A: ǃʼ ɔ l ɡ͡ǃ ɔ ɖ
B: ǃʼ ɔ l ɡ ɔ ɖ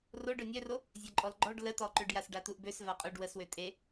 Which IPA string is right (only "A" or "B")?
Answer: A